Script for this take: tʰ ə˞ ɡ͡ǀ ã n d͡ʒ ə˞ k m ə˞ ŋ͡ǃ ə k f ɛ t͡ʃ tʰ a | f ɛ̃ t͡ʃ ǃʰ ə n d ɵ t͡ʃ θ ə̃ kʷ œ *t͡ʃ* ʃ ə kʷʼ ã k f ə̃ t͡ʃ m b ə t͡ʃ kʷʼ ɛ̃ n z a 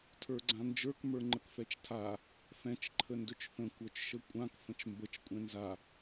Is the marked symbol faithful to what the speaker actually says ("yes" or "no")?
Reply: yes